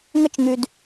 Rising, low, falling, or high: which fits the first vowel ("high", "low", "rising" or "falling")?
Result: high